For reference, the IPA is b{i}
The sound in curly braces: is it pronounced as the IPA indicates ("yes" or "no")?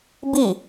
yes